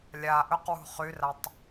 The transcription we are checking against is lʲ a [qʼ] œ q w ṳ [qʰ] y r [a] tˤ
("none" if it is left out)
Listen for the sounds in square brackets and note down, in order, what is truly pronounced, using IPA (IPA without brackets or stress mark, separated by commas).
ʔ, χ, a